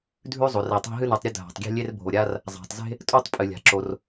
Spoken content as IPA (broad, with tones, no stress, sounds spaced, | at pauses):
dʱ ʉ˥ zˤ o˩ r i˩ tˤ e̤˥ ɦ ɨ˥ n ʉ˩ tˤ ɾʲ ɵ˥ dʱ a̤˩ tˤ ɡʲ e̤˥ lʲ e˥ r bʱ o˩ ɾʲ a˥ r | zˤ a̤˩ tˤ z e̤˥ | tʼ o˥ tˤ pʼ ɨ˩ lʲ a̤˩ ǁ o˩ r